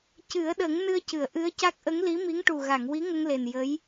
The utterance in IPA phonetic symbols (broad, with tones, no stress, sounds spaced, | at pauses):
c ɨ˨˩˦ ə̯ ɗ ə˨˩˦ ŋ n ɨ˧ ə̯ c ɨ˨˩˨ ə̯ ʔ ɨ˧˥ ə̯ c a˦˥ k̚ ʔ ə˧˥ ŋ l i˧˥ m i˧˥ ŋ ʈ u˨˩ ɣ a˨˩˨ ŋ w i˧˥ ŋ ə˧ ŋ l e˨˩ n j ə˧˥ j